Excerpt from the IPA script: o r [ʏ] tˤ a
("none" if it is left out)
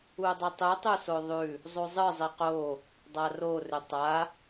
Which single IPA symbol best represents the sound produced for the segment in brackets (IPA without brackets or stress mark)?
ʏ